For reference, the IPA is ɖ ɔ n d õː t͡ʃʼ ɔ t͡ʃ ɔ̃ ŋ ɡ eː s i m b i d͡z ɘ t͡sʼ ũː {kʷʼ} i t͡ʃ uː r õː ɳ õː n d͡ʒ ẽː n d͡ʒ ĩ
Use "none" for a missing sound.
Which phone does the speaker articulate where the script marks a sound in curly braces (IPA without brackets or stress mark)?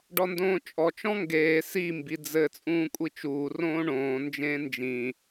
kʷʼ